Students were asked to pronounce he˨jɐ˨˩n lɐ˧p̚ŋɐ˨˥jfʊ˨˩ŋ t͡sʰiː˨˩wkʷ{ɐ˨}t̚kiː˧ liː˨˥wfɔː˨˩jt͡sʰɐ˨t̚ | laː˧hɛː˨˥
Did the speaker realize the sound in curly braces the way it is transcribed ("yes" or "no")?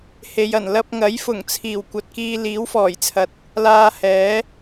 yes